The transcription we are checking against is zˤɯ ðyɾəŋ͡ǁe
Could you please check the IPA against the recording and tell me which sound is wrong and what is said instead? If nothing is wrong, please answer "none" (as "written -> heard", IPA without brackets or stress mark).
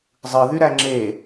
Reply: ə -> æ